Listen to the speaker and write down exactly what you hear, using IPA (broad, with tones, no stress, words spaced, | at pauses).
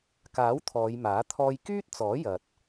kaː˨˥w t̪ʰɔː˨˧jmaː˨˥ t̪ʰɔː˧jkyː˥t̚ t͡sɔː˨˥ jɐ˨t̚